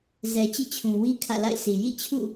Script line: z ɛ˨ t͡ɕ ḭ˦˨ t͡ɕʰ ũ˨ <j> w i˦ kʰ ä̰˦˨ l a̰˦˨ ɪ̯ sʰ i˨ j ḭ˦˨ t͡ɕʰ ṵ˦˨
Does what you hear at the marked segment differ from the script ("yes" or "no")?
yes